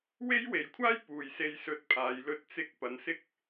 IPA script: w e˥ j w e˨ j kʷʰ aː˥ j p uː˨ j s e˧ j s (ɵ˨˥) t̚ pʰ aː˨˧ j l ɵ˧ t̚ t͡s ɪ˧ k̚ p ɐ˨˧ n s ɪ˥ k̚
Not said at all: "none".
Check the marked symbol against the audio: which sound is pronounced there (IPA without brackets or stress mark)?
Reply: ɵ˧